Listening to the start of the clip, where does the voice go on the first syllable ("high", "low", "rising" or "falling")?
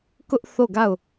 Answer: high